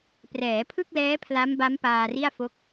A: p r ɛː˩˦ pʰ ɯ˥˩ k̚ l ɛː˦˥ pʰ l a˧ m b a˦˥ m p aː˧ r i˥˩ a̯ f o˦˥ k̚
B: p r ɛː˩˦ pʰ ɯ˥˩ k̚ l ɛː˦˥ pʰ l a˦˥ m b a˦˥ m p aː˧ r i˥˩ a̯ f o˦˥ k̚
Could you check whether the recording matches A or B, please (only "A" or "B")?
B